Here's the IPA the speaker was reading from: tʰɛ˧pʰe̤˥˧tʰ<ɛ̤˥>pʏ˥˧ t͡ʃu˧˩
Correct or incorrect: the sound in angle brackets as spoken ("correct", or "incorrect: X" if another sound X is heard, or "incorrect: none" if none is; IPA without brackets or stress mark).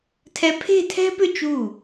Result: correct